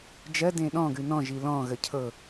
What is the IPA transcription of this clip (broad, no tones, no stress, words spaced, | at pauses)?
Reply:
d͡ʒɜ dẽɗɔ̃ ɡʉnɔ̃ ʒilɔ̃ ɣəcʰɤ